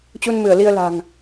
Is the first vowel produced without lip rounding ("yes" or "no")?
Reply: no